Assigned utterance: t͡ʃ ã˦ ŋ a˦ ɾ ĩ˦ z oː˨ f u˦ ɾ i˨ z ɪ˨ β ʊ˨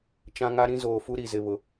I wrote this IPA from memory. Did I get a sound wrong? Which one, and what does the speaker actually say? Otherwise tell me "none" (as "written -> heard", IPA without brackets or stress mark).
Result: none